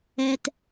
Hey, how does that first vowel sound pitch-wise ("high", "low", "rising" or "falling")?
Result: low